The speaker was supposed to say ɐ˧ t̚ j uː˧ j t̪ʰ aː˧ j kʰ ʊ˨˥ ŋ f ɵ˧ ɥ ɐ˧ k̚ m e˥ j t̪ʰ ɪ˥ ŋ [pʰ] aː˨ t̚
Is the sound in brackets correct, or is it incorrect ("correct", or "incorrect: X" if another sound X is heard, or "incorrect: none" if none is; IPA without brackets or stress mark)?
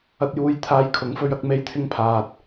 correct